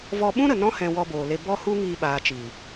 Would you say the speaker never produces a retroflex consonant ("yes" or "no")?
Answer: yes